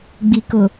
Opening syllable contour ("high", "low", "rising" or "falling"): low